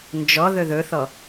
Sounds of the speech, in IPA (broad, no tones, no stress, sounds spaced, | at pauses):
n d͡ʒ ɔ ð ɵ ð ɵ θ ɔ